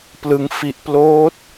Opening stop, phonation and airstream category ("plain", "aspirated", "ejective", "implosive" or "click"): plain